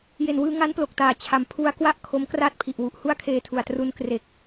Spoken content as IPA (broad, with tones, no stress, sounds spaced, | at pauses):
j e˨˩ n w ɯː˧ ŋ a˦˥ n p l o˨˩ k̚ t aː˨˩ t͡ɕʰ a˨˩ m pʰ u˧ a̯ k w a˥˩ ʔ kʰ o˦˥ m k r aː˥˩ t̚ pʰ i˨˩ ʔ w u˨˩ ʔ h u˥˩ a̯ kʰ eː˧ tʰ u˨˩ a̯ t r u˧ n k r e˨˩ k̚